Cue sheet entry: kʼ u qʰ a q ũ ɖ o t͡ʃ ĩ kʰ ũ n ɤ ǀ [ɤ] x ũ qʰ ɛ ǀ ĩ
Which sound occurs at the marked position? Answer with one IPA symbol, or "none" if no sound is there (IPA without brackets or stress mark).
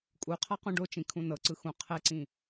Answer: ɯ